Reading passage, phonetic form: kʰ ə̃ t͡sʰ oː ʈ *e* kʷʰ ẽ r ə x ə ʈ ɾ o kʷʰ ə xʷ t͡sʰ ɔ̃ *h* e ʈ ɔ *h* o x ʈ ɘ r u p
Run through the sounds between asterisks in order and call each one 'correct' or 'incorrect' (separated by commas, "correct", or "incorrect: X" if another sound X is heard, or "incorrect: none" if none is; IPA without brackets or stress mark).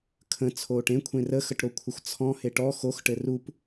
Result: incorrect: ẽ, correct, incorrect: x